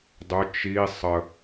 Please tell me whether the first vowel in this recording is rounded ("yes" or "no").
yes